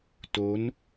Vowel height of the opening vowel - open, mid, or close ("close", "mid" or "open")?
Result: mid